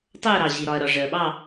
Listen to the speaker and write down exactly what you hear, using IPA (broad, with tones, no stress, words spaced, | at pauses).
tˤɜ˥˨ɾɑ˩ ʑi˩ɾɒ˩ɐ̯ɾɒ˩ ʐɜ˩ɓɑ˥˨